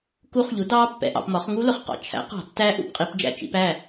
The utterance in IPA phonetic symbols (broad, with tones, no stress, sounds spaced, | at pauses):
k u˦˥ χ ʎ u˩˥ d ɑː˦˥ pː ɛ̰˩˧ ʔ ɑ̰˩˧ p m ɒ˩˥ χ ŋ u˦˥ l ʊ˩ χ q ɑ̰˩ t͡ʃʰ æ̰˩˥ q ɑ̤˧˩˧ tː æ˦˥ ʔ ṵ˧˩˧ p qʼ i˩˧ p d͡ʒ æ̰˧˩˧ t͡ʃ ḭ˩˧ p æ˥˩